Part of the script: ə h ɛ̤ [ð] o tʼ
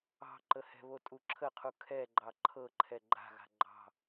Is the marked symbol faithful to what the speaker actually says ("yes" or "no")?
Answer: no